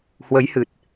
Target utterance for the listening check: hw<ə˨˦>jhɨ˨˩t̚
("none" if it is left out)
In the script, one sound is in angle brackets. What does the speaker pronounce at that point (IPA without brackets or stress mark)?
ə˨˦